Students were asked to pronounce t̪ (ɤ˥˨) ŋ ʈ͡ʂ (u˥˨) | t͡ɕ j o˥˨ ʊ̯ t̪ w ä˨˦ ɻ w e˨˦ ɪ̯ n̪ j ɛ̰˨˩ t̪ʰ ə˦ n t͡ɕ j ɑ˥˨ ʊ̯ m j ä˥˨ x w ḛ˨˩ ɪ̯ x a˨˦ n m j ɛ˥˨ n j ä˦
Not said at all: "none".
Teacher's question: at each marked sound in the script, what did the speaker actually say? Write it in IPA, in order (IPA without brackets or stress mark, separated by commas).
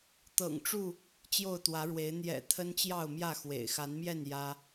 ɤ̰˨˩, u˥˨